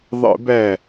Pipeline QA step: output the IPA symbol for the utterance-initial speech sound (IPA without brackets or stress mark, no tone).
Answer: ðˤ